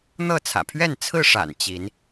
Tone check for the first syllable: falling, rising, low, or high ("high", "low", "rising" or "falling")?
falling